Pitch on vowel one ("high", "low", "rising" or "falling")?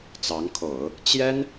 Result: rising